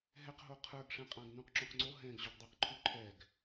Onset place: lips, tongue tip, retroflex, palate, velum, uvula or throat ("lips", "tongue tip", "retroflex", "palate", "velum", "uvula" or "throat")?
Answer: throat